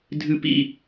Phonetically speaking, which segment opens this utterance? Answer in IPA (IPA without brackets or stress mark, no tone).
dʱ